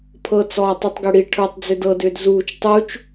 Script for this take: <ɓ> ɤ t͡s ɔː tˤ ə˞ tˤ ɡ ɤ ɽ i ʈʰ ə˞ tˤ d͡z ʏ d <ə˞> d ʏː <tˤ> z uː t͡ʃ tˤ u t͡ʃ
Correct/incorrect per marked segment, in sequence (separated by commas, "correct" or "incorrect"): incorrect, incorrect, incorrect